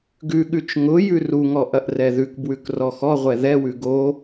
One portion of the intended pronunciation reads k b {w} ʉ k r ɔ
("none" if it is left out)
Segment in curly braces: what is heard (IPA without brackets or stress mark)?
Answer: w